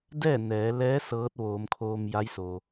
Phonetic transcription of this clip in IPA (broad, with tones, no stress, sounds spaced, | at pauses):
d ɛː˥˨ n ɛː˩˧ l ɛː˧˥ s ɤː˧˥ t̚ ʋ oː˩˧ m kʰ oː˧ m j a˧˥ j s o˩